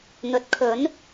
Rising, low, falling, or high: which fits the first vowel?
rising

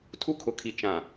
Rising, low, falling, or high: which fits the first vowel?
high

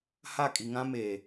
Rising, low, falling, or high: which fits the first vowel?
falling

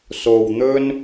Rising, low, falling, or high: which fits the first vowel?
low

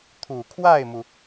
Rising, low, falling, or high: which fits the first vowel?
low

